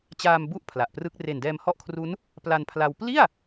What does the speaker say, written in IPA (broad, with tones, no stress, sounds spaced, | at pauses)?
t͡ɕ aː˧ m b u˥˩ ʔ pʰ l a˨˩ ʔ p r ɯ˦˥ k̚ r e˨˩ n d ɛː˧ m h ɔ˦˥ ʔ kʰ r u˦˥ n | p l a˧ n pʰ l a˧ w p l i˥˩ a̯